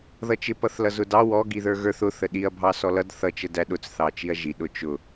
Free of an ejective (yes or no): yes